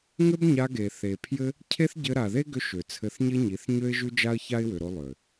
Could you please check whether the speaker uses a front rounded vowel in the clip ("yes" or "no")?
yes